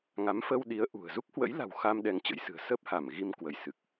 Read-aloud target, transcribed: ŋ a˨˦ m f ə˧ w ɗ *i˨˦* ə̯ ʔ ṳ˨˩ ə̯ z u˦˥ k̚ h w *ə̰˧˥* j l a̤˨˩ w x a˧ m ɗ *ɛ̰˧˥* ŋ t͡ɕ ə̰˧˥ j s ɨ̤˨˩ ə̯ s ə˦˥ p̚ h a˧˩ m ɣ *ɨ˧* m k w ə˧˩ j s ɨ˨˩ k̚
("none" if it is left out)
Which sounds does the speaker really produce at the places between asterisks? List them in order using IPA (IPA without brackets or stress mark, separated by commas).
i˨˦, ə̰˧˥, ɛ˧, i˧